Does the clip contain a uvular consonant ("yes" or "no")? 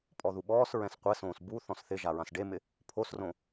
yes